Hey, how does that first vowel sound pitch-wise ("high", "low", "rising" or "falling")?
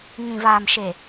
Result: low